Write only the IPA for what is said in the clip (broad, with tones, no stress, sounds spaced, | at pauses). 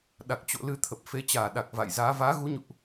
ɗ a˨˩ k̚ t͡ɕ o̰˧˨ l ɨ˨˦ t̪ʰ ə˨˩ p̚ f e˨˦ t͡ɕ aː˧˩ ɗ a˨˩ k̚ v a̰˧˨ j z aː˨˦ v aː˨˦ ɣ u˨˦ ɲ ṵ˧˨ ʔ